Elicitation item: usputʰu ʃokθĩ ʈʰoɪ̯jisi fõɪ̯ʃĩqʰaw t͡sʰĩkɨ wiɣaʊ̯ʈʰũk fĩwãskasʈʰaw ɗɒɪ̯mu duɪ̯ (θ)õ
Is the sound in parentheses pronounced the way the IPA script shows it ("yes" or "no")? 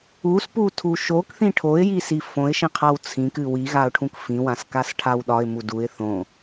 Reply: yes